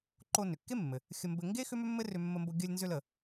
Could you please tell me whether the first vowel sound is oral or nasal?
oral